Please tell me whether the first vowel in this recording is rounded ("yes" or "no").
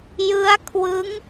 no